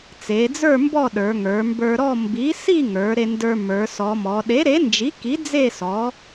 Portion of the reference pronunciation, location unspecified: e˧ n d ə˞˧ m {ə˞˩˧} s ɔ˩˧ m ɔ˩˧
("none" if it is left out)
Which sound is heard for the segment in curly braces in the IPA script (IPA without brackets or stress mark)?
ə˞˩˧